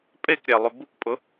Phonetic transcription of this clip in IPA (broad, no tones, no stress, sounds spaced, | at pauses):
pʼ e k ɾʲ æ lˠ ʏ b u k pʼ ʊ